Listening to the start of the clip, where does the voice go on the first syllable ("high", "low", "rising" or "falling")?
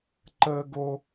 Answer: high